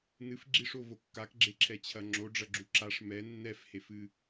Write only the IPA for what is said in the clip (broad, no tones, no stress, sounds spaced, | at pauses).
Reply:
n ɨ f ɡ͡ǁ i ʂ o v o kː a k ɡ͡ǁ e ǁʰ ɛ t͡ɕʰ ɐ ŋ͡ǁ o ɖ͡ʐ ɐ ɡ͡ǁ u ǁ a ʂ m ɛ nː ɛ f h e f ɨ